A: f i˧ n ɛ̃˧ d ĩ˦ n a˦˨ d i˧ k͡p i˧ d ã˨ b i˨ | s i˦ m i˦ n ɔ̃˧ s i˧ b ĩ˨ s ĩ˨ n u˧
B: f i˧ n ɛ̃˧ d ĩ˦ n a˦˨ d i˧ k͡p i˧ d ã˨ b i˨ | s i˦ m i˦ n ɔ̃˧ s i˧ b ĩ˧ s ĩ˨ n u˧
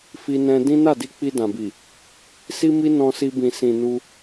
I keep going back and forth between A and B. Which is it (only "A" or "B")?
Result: A